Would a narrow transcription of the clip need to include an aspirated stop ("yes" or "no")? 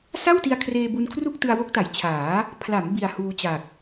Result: yes